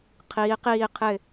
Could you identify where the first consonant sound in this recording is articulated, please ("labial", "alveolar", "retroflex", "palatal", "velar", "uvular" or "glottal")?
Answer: uvular